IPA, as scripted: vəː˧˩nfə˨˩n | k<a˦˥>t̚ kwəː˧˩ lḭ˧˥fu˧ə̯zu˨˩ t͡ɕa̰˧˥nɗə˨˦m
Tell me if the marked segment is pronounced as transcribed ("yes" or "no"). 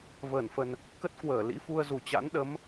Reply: no